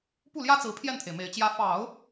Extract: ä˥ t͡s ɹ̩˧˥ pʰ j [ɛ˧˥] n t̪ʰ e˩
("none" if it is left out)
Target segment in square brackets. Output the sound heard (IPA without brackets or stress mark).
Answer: ɛ˥˩